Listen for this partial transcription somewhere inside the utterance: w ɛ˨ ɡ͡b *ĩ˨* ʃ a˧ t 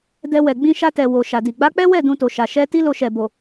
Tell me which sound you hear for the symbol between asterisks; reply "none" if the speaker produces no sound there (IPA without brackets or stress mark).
ĩ˧